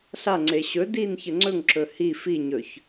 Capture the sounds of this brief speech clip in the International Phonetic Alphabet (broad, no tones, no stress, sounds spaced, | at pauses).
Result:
ɬ a ŋ͡ǀ e ɕ ɵ d i n ç ə ŋ͡ǀ ɵ ŋ ǁ ɵ h i f i ɲ ɵ ç